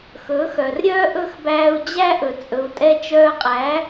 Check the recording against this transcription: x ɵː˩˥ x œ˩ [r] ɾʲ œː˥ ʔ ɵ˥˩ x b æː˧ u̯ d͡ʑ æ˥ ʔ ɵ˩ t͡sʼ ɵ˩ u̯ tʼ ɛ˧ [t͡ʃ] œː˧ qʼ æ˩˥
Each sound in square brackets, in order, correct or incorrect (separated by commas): correct, correct